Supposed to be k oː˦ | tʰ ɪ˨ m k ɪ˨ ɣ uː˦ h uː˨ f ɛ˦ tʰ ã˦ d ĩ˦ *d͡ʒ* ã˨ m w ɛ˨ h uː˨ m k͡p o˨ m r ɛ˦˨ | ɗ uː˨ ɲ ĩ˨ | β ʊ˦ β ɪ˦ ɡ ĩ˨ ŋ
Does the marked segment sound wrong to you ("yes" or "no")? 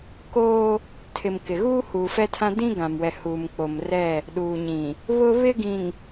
yes